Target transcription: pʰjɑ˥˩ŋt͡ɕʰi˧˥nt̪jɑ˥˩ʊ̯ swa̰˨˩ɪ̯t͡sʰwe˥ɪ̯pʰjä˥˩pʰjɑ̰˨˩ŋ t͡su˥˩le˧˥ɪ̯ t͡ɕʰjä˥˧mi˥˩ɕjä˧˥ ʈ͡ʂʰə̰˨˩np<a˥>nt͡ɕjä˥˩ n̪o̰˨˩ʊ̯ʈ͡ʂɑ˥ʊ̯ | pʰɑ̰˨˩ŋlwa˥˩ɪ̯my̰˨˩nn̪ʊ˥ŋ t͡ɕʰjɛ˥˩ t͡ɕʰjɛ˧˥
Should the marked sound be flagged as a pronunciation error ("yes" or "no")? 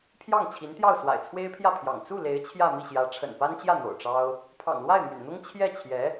no